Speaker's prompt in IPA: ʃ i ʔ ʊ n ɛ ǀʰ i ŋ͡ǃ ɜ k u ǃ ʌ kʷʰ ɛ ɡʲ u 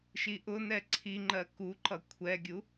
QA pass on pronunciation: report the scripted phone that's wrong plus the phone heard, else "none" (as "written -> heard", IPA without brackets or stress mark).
none